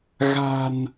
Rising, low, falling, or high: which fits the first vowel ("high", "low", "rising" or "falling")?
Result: low